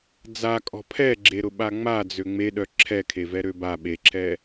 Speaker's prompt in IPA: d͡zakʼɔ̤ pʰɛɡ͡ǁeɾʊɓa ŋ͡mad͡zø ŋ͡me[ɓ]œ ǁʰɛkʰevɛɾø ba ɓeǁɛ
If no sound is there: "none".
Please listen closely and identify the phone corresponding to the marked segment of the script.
ɗ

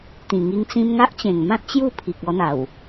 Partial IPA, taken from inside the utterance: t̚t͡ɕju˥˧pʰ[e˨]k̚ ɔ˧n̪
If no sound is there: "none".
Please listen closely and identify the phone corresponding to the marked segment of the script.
i˨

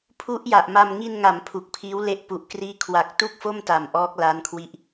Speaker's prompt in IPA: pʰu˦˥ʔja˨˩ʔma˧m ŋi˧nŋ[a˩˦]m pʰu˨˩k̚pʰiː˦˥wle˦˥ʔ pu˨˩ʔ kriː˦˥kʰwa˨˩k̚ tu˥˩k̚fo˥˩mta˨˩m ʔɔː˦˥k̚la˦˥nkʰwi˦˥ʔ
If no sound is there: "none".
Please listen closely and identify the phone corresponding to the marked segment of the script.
a˩˦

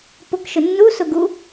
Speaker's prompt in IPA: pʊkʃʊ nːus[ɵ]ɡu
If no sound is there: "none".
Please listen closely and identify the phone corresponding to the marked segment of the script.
ʊ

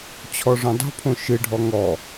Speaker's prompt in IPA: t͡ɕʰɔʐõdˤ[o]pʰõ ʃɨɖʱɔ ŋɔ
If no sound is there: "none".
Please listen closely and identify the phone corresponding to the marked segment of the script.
o̤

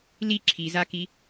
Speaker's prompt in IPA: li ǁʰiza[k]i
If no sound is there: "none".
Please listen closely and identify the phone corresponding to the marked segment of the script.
k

